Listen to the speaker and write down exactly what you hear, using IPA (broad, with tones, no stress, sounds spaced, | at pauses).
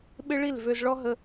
ɓ ɪ˦ ɭ i˦˨ l v ø˧ z ɭ ɔ˦ ɦ ə˧